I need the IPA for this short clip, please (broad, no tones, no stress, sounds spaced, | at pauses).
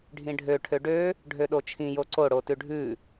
ɖʱ ĩ ɖʱ ø ʈʰ ø ɖ ø | ɖʱ ø ɗ o t͡ʃʰ ĩ j o ǀ o ɽ o t ʉ ɖʱ ʉ